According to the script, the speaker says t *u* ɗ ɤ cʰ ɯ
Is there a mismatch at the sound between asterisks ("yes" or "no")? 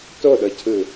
yes